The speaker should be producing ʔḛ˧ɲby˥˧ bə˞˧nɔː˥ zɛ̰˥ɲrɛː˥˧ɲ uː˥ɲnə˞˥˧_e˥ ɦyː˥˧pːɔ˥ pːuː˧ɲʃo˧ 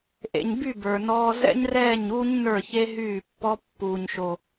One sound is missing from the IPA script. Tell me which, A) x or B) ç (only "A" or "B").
B